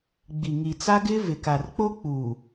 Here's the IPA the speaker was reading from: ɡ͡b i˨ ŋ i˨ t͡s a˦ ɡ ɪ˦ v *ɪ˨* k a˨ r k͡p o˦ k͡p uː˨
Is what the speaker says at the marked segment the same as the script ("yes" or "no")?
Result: yes